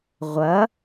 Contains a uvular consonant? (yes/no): yes